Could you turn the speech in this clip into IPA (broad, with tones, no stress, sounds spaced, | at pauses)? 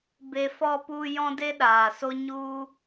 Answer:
b e˨ f ɔ˧ p u˧ j ɔ̃˦ d e˦ ɗ aː˨ s o˦ ɲ u˦